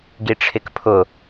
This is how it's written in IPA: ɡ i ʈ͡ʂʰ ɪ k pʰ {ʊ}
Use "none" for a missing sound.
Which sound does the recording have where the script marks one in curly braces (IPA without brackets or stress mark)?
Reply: ʊ